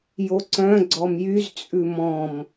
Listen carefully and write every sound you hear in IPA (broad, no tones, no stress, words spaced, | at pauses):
joǀœ̃ ɡ͡ǀɔmjyz t͡sʼʉmɔ̃m